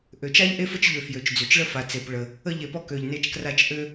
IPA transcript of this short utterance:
ʔø˩t͡ʃa˥ʎ ʔe˥fə˥t͡ʃʎø˩ fjø˩t͡ʃd͡zø˩t͡ʃɭə˥ fa˩t͡se˩pɭə˩ | ə˥ʎe˩pɔ˥ kø˩ʎne˥t͡ʃkra˥t͡ʃ ʔø˥

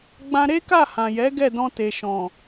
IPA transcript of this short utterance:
ɡ͡bã˧ɾe˦ka˦˨ hã˨jɛ˨˦ ɡɛ˦˨dɔ̃˧te˨ʃɔ̃˨

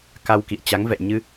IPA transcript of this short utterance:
ka˧wkḭ˧˨ə̯ t͡ɕa˨˦ŋvɛ̰˧˨jɲɨ˧

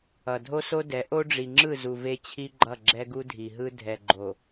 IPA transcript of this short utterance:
ʌ˨ dʱo˦so˦dɛ˨˦ ʔo˦ɖ͡ʐi˨ŋ͡ǁɯ˦˨zu˨ ve˦t͡ɕʰi˦ɡ͡ǃʌ˦˨ ɡ͡ǁɛ˦ɡu˦dʱi˨ɦɯ˦ dʱɛ˨ɡ͡ǃo˨

